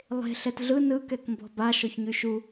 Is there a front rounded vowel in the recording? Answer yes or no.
yes